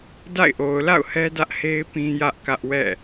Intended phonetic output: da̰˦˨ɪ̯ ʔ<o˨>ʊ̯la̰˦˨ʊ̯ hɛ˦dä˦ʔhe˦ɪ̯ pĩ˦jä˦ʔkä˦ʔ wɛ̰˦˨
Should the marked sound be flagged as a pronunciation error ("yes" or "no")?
no